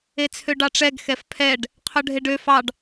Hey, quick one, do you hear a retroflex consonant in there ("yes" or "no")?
yes